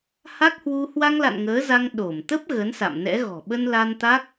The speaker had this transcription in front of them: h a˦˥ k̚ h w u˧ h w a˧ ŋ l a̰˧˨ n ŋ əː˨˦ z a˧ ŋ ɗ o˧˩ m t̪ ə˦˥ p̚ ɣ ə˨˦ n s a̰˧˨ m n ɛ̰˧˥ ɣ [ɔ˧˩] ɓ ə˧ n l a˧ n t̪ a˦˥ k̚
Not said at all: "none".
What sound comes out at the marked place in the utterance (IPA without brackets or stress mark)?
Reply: ɔ̤˨˩